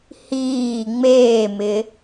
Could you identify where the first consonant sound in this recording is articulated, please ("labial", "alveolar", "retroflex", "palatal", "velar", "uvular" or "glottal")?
glottal